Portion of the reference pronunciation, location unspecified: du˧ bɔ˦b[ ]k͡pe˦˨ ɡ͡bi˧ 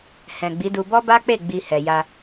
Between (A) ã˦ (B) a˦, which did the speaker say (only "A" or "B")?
B